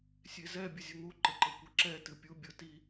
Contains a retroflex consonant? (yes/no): no